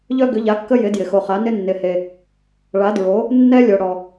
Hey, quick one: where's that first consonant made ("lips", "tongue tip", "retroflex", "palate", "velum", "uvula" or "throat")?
palate